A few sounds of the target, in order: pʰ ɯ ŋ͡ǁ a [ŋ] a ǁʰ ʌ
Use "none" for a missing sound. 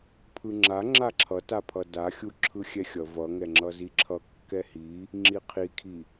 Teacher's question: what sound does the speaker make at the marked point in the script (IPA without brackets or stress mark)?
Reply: ŋ͡ǁ